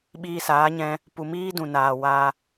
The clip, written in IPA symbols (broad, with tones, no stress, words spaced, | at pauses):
ɓiː˧saː˨˦ɲɛ̃˧ | pu˨miː˦dũ˨naː˨ wa˧